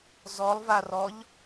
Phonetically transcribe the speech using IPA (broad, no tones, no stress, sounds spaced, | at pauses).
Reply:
z ɔ lˠ v a r ɔ ʎ